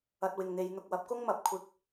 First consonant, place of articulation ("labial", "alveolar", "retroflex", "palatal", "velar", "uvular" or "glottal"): alveolar